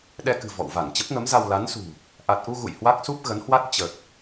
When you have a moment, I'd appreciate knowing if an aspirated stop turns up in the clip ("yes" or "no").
no